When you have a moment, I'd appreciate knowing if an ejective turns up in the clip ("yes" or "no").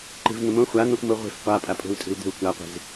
yes